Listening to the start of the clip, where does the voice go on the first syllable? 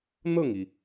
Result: falling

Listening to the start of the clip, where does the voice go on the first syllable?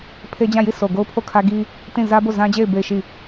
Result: high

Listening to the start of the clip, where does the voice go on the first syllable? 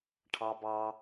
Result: high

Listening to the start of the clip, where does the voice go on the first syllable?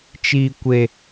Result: high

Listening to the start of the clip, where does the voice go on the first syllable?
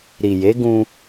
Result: low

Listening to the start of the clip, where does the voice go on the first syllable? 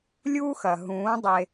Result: high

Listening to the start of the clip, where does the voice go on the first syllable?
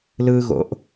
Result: high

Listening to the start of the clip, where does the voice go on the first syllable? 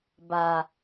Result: low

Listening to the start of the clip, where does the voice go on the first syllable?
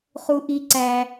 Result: high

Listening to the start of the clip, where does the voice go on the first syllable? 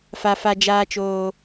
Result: high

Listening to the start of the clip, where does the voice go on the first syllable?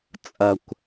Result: low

